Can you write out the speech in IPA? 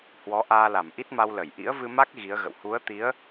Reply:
h w ɔ˨˦ ʔ aː˧ l a˧˩ m ʔ i˦˥ t̚ m a˧ w l ə˧˩ j ʔ ḭ˧˥ ə̯ v ɨ˧ m a˦˥ k̚ ɣ i˨˦ ə̯ ɣ ə̰˧˨ w h u˨˦ ə̯ t̪ i˨˦ ə̯

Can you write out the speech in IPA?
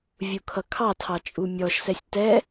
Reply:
vʲ u kʰ ʌ kʰ ɑ tʰ ɑ t͡ʃʼ u mʲ ɔ ʃ s ɛ sʲ t ɛ

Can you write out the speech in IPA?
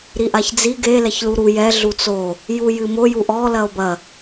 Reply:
ɾ i ʔ a ç d͡z i ɡ e l ɛ ç l u ɾ u j ɛ ɮ u t͡s o | j u j ɨ m o j u ʔ ɔ l ɐ o̯ b ɐ

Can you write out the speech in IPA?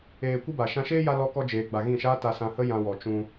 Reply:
eː˧ kʷ ɨ˦ b a˨ ʃ ã˧ ʃ eː˦ j a˦ l ɔ˦ k ɔ˧ d͡ʒ eː˨ ɡ͡b a˨ ɣ ĩ˦˨ ʃ aː˦ t a˧ s ã˧ h ə˦ j ã˧ w ɔ˨ t͡ʃ ũ˧

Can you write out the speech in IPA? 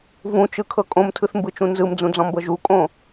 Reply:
v ũ t͡ʃ ɯ kʰ ɤ kʼ õ m tʰ ɯ θ m b ɯ t͡ʃ ũ n z ɯ m d͡z ũ d͡z ɔ̃ m b ɤ ʒ u kʼ õ

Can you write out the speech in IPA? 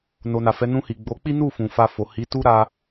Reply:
n o˨ n a˨ f ɛ˨˦ n ũ˧ h i˨ ɡ͡b o˨˦ k͡p i˦ n u˦˨ f ũ˨ f a˧ f o˨ h i˨˦ t u˦ ɾ a˧

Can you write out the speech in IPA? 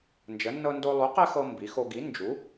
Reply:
n d͡ʒ ə˨˥ nː ɤ˦ n d o˦ lˠ u˨˥ q ɛ˦ x ɤ˦ m b i˨˥ x o˦ ɡ i˨˥ n d͡ʒ u˨˥

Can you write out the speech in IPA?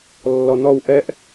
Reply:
lː ɔ n ɔ w ʔ ɛ ʔ

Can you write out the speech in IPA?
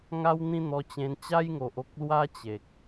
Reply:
ŋ a˦ w n̪ ĩ˦ n̪ ɔ˧ t͡ɕ ẽ˧ n t͡ɕ a˦ j ŋ o˨ ʔ o˦ k̚ l w a˦ t͡ɕ e˨ k̚

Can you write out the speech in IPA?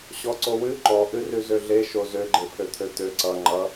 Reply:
ɕ ɔ ǀ o w ʉ ǃ ɔ ʔ ʉ r ʉ z ø ɮ e ʃ o z ø ɡ͡ǃ e pʰ ø t̪ʰ ø t̪ ø ǀ ʌ ŋ͡ǃ ʌ

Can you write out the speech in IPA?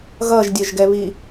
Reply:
ɣ ʌ ʒ dʲ ɜ ʒ ɡ ɛ β i

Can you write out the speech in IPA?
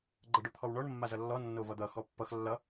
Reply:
ɡ͡ǃ ʌ ɖ o t̪ʰ ɔ w ɳ ɔ ɳ mː a z ʌ lː ɔ nː o v ʌ d̪ ʌ x ɔ pː ʌ x lː ʌ

